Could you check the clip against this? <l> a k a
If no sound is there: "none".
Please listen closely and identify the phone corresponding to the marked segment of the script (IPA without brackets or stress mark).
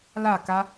l